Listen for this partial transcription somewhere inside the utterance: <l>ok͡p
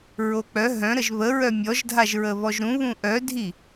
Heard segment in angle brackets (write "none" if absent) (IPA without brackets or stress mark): ɹ